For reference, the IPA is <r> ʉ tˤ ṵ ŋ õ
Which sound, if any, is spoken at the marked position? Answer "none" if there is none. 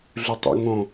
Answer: ɮ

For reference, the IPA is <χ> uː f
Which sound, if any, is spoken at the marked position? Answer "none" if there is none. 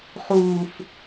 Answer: χ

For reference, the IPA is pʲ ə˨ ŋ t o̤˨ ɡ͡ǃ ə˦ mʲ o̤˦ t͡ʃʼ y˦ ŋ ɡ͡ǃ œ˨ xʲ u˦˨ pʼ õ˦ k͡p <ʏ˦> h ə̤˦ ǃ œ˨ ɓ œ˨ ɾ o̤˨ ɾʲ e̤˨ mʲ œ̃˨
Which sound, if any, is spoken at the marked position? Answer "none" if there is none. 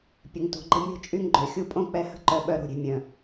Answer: ɛ˦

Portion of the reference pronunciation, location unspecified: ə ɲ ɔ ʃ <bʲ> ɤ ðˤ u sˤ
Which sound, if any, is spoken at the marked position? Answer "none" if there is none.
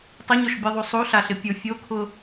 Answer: bʲ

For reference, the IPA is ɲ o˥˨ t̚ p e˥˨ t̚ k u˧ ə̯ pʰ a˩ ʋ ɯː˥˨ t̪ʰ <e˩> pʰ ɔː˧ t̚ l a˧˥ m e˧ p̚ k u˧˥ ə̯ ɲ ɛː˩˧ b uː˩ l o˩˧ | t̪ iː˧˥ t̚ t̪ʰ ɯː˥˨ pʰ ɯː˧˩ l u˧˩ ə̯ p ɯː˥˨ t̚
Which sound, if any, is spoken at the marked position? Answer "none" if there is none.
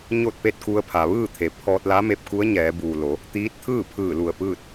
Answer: e˩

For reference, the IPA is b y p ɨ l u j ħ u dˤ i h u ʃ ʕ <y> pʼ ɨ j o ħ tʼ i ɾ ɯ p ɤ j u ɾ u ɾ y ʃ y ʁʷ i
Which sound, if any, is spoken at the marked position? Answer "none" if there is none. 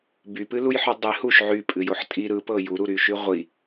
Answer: y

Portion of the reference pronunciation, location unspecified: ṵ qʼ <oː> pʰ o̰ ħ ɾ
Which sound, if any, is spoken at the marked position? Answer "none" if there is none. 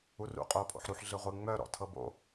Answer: oː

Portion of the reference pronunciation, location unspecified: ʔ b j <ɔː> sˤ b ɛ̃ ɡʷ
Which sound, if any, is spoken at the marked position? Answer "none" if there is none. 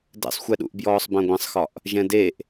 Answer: ɔː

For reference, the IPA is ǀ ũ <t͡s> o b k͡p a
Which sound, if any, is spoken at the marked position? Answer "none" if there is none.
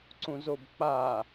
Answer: z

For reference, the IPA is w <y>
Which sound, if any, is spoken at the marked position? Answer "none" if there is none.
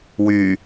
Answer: y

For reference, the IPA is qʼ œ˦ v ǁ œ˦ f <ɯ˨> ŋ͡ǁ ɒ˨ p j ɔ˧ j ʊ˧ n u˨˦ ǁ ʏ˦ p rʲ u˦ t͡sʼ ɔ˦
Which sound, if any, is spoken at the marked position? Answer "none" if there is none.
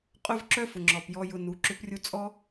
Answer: ʊ˨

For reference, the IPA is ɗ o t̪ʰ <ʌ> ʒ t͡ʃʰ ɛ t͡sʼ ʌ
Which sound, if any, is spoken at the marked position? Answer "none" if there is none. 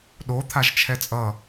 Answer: a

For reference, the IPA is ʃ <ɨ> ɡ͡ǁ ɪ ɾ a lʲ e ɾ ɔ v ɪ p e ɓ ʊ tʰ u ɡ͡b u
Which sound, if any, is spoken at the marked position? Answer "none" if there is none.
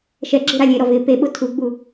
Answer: ɛ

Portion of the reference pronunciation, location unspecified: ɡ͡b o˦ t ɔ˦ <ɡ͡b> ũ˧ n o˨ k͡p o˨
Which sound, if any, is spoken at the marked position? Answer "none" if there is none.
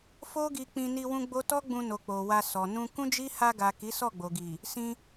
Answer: ɡ͡b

